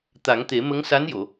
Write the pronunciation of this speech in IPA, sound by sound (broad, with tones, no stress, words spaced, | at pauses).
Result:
t̪a˨˩˦ŋt̪e˨˩˦ mə˧˥ŋ sa˧˥njo˨˩˨